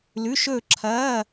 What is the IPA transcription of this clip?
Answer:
l ʉ˧˥˧ ʃ ɵː˥˧ ǁʰ ɐː˧˥˧

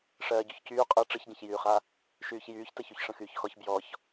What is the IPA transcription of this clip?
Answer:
ʂ ɜː ɟ y ç c yː qʼ ɯ ʈ͡ʂ ɯ ç ɟ ə̃ ç j yː χ a | ʃ yː ç j yː ç t ə ç y ç ʂ ə̃ x yː ç x ɔ ç b j ɔ ç

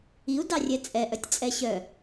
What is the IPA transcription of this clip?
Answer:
i u̯ d ɑ rʲ ɛ t͡sʼ ɛ ʔ œ tʲ t͡sʼ ɛ ɕ œ

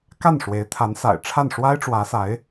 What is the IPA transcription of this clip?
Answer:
k a˥˩ n ʂ w e˧˥ ɪ̯ t̪ʰ a˧˥ n s a̰˨˩ ɪ̯ ʈ͡ʂʰ a˥˩ n ʂ w a˥ ɪ̯ ʈ͡ʂ w ä˧˥ s a˧˥ ɪ̯

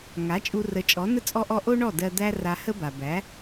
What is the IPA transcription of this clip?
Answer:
ŋ a˩˥ t͡ʃʼ u˧ r ə˩˥ t͡ʃʼ ɔ˩˥ n ə˥ t͡sʼ ɔ˧ ʔ ɔ˧ ʔ o˥ ɳ ɔ˥˩ d ɜ˧ d̪ æ˥ r a˧ h ə˥ b a˩ b æ˩˥

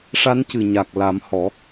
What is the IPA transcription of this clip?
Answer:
ʂ a˧˥ n c ɨ˨˩ ɲ a˨˩ k̚ l a˨˩˦ m h ɔ˨˩˦

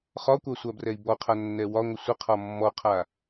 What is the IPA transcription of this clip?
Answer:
χ ɒ kʷ a sʷ a b r ɛ i̯ b ɔ qʰ a nː ɛ w ɒ ŋʷ ə sʷ ə qʰ ɒ mː ɔ qʰ a

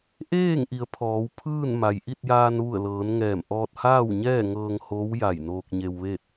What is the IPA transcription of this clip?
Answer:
ʔ eː˥˨ ŋ ʔ i˩˧ ə̯ pʰ ɔː˩˧ w pʰ ɯː˥˨ n m a˩ j ʔ i˥˨ t̚ j aː˧ n ʋ u˧˩ ə̯ l ɤː˩˧ n ŋ ɛː˧˩ m ʔ ɔː˧ t̚ h aː˥˨ w ɲ ɛː˥˨ ŋ ɤː˧ ŋ h oː˧˥ w j a˧˩ j n oː˧ k̚ ɲ e˧ w ʋ e˥˨ t̚

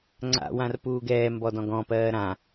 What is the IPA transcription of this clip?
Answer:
ŋ͡ǀ a̰ w ã r p uː ɡ ɛː m b ɔ d ɔ̃ ɡ ɔ̃ p ɜː ɾ ã

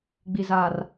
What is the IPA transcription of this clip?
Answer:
ɡ͡b i˨ z aː˨ r

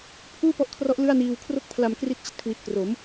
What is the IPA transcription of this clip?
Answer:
pʰ uː˥˩ p ɔ˦˥ ʔ kʰ r ɔ˦˥ ʔ l ɯ˥˩ a̯ n iː˧ w kʰ r o˥˩ k̚ pʰ l a˧ m k r i˦˥ t̚ t͡ɕ i˥˩ t̚ kʰ w i˨˩ t̚ k r o˩˦ m

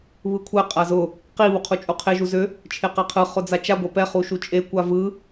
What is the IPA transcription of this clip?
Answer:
β ɯ kʷʰ ɛ qʼ a z ʊ | q i β u qʰ u t͡ʃʼ u qʰ e ʒ u z ʏ | t͡ʃʰ e q ɛ qʰ ɯ χ ʊ d͡z a t͡ʃ a ɡʷ ɛ p ɛ χ u ʃ u t͡ʃʼ e kʷ a v ɯ

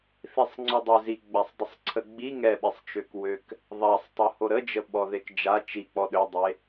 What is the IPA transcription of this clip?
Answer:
θ i sˤ ŋ͡ǀ ø dˤ u z i ɡ͡b a sˤ dˤ ə sˤ ǀʰ ə ɡ͡b i ŋ ɛ ɓ i sˤ t͡ʃ ø k w ø k | ðˤ a sˤ tˤ u h o ɾ ə d͡ʒ ə ɓ ɔ ð e k d͡ʒ a t͡ʃ i k͡p ɔ ɗ ø dˤ e

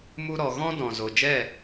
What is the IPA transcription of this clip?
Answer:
m u˦ ɾ ɔ˧ ɣ ɔ̃˦ d ɔ̃˨ z o˨ d͡ʒ ɛ˦˨

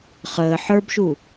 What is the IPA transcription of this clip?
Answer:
χ əː ħ ə˞ b ʃ u

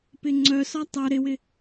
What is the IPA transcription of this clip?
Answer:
p ɪ ŋ͡ǀ œ s ɒ tˤ œ ɾ ɪ w ɪ

